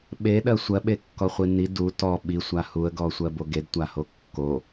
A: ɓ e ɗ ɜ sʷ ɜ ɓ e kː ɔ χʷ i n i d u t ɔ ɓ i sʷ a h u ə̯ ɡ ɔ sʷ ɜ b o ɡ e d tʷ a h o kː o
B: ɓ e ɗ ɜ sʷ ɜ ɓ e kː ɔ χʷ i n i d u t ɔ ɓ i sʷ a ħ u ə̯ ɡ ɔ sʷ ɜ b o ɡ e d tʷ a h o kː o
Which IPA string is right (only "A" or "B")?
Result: A